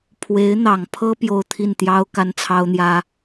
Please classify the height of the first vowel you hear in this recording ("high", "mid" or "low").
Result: mid